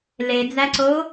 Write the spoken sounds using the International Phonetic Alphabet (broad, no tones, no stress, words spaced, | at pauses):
led͡zæǀo